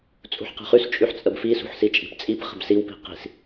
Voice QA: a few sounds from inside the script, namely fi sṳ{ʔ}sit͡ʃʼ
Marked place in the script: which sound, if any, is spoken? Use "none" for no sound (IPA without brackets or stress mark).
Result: ħ